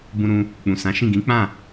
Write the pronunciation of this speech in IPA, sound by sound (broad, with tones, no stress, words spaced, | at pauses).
bũ˧ɾũ˧ | k͡pũ˨sã˨˦ʃĩ˦˨ ɡĩ˨˦k͡pã˦˨